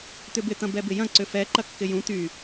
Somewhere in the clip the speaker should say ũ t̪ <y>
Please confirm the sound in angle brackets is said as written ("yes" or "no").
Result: yes